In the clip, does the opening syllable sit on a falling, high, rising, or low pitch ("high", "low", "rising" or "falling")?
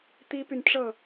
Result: high